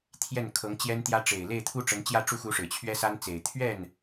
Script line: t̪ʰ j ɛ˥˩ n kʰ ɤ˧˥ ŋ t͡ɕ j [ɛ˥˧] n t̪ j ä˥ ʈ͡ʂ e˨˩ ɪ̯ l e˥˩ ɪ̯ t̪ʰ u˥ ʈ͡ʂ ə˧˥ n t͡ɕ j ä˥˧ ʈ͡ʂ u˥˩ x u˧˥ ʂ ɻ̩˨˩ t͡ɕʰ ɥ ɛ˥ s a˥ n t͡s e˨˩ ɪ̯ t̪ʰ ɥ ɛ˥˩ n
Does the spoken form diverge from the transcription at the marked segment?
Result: yes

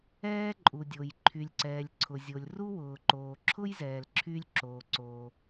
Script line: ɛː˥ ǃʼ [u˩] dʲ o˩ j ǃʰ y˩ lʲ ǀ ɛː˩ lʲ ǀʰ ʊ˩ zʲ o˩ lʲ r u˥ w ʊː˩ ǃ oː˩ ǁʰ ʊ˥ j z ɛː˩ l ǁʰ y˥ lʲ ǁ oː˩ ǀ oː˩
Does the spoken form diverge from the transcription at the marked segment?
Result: no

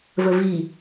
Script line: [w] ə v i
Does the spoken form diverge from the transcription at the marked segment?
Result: yes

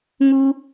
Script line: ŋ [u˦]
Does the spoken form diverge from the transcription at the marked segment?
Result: no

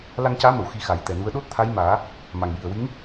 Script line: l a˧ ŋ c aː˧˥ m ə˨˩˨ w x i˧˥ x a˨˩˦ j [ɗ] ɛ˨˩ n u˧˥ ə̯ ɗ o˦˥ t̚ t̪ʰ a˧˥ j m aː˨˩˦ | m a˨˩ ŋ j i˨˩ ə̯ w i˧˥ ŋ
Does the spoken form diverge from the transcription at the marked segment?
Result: yes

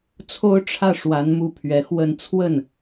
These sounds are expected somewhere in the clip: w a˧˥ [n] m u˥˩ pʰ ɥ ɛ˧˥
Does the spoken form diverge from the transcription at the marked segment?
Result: no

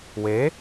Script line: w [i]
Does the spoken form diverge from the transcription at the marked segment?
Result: yes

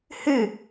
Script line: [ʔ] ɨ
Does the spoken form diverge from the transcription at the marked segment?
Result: yes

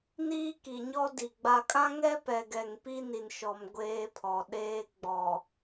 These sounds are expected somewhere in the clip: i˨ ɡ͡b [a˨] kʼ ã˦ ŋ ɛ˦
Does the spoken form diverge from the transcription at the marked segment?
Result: no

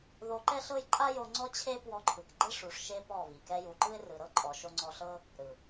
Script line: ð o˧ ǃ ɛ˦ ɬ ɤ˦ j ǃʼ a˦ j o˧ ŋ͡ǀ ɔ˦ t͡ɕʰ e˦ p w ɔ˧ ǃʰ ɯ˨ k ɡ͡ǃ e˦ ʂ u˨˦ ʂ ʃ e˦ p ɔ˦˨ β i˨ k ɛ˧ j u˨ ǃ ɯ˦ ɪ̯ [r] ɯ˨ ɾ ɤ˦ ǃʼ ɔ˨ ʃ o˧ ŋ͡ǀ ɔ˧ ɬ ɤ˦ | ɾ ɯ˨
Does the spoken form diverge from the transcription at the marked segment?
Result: no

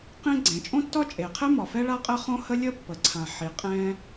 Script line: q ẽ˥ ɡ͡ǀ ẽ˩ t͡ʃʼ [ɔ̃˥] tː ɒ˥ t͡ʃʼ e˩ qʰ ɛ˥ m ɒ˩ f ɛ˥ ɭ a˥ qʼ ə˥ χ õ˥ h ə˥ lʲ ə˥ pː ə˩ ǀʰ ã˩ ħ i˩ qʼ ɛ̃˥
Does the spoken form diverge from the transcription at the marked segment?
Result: yes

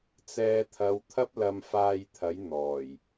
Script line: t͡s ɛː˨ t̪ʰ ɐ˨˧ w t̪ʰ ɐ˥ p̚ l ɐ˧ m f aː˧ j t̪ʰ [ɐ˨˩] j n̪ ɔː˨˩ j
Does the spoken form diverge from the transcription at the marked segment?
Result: yes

